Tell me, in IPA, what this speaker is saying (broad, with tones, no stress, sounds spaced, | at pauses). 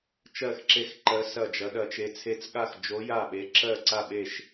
t͡ʃ ɜ˥˩ x ǁ e˥˩ x ǃ ɜ˧˥ s ɐ˥˩ d͡ʒ ɐ˧˥ ɗ ɐ˧˥ t͡ʃ e˧˥ t͡sʰ e˧˥ t͡s ɠ a˥˩ x d͡ʒ o˧˥ j a˥˩ ɓ e˧˥ ǁ ɜ˥˩ ǀ a˥˩ ɓ e˥˩ ʃ